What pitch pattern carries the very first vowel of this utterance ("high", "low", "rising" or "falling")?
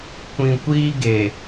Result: low